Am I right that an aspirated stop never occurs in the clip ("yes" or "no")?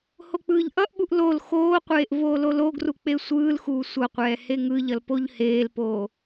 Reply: yes